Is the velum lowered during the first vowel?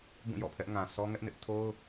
yes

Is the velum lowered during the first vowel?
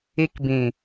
no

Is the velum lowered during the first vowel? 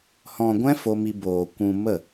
yes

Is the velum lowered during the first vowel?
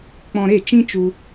yes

